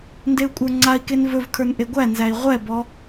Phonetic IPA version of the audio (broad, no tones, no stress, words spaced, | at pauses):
ndeu̯kʷʼə˞ŋ͡ǀai̯ken vɵvkʰə˞n ʔeɡʷænzæi̯ ʁʷɛbɔ